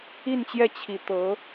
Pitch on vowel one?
falling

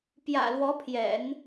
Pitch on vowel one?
low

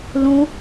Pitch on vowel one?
high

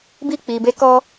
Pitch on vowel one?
falling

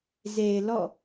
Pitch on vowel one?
low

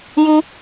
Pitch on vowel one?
high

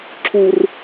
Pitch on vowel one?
low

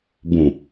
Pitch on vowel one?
low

